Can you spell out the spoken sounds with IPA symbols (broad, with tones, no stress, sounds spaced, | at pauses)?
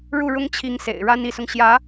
ɻ u˥˩ ɻ ʊ˥ ŋ t͡ɕʰ i˧˥ ŋ s ḛ˨˩ ɪ̯ ɻ a˥ n i˧˥ s ʊ˧ ŋ ɕ j ä˧˥